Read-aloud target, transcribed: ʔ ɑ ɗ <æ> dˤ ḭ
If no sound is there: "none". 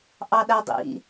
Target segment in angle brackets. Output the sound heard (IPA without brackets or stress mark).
æ